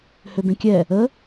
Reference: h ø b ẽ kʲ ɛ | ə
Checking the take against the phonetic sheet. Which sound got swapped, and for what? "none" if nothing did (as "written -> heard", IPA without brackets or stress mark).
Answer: none